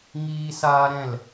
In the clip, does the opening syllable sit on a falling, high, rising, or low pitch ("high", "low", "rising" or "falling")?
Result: high